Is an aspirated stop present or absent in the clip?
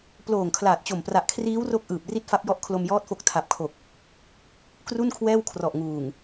present